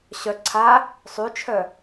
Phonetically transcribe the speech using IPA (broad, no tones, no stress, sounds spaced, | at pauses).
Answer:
ɕ œ ǀʰ a | sˤ y t͡ʃʰ œ